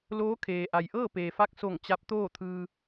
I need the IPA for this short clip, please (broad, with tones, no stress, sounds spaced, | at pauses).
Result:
l oː˧˥ kʰ eː˩ ʔ a˩ j ʔ ɤː˥˨ p eː˩ f a˥˨ k̚ s o˧˩ ŋ t͡ɕ a˧˥ p̚ t̪ oː˥˨ t̪ʰ ɯː˧